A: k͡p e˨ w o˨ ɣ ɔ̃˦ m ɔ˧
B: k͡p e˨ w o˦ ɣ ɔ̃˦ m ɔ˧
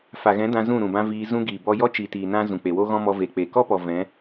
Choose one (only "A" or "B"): B